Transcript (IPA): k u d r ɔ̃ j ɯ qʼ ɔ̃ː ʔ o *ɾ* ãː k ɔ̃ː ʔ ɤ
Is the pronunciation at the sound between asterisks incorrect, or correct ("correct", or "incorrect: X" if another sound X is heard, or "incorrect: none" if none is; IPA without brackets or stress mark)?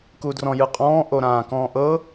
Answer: correct